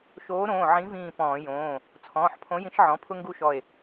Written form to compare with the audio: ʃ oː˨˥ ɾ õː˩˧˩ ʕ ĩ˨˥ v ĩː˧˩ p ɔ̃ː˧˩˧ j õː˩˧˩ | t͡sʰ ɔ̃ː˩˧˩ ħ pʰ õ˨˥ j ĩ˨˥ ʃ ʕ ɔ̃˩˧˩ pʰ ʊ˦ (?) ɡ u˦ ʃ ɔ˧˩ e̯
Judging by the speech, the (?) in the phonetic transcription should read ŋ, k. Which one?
ŋ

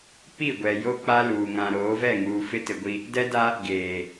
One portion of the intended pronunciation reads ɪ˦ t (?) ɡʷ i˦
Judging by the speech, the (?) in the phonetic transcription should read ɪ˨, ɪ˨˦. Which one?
ɪ˨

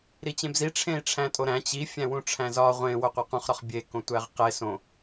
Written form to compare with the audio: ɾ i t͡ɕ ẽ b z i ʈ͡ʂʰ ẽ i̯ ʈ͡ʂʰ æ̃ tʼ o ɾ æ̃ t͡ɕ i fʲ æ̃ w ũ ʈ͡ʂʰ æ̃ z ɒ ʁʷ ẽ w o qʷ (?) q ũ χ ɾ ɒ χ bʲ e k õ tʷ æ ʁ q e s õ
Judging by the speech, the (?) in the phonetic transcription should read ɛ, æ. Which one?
æ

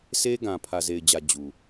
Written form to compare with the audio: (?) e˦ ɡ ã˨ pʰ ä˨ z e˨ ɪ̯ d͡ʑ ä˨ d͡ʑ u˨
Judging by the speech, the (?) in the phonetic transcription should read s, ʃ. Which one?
s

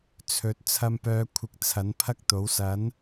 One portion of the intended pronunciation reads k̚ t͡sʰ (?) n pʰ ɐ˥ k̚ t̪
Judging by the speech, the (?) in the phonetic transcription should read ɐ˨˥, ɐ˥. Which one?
ɐ˨˥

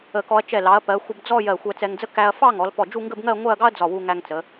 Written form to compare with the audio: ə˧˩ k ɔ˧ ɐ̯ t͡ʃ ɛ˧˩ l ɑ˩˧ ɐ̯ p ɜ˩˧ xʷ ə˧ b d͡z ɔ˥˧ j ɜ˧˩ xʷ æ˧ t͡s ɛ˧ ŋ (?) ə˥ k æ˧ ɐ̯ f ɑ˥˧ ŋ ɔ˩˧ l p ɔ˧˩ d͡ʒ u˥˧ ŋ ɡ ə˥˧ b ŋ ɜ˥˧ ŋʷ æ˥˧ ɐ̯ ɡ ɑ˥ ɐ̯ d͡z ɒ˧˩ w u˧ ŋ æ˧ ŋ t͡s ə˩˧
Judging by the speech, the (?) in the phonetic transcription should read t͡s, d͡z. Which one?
d͡z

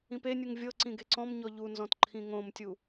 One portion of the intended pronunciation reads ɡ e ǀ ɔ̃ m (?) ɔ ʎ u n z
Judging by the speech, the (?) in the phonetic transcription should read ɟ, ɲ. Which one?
ɲ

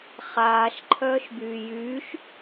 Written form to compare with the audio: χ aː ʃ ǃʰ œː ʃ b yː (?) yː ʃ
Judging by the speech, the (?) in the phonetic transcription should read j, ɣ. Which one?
j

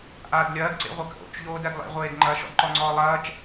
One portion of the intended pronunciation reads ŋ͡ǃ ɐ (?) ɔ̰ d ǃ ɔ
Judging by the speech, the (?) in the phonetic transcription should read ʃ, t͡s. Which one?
ʃ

